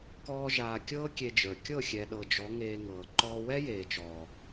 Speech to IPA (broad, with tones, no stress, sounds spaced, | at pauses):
k ɔː˧ ʒ aː˨ kʲ ɤː˦ kʲ e˧ d͡ʒ ə˞˨ kʲ ɤ˦˨ xʲ ɛ˨ ɗ ɤ˨ d͡ʒ ɔ˨˦ ŋ eː˧ ŋ ɤː˨ ǃ ɔː˦ w ɛ˦ j eː˨ t͡ʃ ɔː˨